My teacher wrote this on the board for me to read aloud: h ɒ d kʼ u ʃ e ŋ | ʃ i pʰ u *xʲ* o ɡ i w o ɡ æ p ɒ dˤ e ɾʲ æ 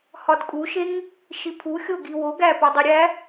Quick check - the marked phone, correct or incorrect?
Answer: correct